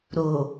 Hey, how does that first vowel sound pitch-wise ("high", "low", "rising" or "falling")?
low